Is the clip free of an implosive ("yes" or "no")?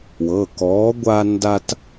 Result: yes